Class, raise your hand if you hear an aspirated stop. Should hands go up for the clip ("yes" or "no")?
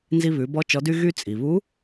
no